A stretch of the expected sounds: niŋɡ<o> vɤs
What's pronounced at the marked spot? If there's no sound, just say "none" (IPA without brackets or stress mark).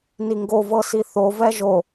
o